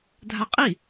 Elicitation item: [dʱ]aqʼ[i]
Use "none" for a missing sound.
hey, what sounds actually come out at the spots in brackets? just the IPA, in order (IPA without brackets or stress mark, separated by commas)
dʱ, i